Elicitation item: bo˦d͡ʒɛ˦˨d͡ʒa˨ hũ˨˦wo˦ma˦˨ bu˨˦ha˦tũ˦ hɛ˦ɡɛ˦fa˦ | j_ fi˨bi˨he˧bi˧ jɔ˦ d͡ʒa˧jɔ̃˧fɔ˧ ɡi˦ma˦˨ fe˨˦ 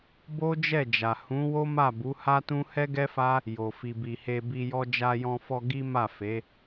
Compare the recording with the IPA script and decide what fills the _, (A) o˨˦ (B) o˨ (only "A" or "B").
B